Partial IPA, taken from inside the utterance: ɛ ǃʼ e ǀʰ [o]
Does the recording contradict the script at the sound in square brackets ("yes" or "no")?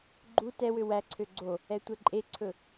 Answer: yes